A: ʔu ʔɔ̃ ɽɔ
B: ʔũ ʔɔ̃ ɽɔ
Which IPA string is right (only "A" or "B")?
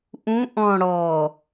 B